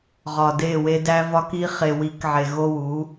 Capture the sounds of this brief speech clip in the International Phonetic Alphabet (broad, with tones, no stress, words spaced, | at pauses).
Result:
ʁɒ˨de˦˨we˦ dæ˦vɒ˦ki˦ χe˨wi˨˦kʕe˨ ɣo˦wu˨˦